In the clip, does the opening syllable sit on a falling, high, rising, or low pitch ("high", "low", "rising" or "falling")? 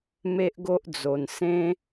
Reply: high